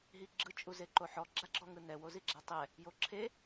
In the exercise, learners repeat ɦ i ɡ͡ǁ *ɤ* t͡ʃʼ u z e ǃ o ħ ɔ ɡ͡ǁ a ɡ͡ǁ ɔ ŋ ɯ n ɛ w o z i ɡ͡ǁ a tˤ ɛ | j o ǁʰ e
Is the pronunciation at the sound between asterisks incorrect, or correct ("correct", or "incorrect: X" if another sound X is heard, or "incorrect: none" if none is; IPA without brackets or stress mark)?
incorrect: ɯ